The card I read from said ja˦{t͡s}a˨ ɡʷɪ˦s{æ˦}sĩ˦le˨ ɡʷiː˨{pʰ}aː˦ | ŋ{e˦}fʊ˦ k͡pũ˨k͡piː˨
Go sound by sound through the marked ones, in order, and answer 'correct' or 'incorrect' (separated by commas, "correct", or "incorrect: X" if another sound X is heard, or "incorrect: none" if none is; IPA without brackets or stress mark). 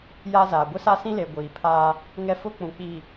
incorrect: z, incorrect: a˦, correct, incorrect: ɛ˦